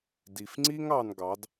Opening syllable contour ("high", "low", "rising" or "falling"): low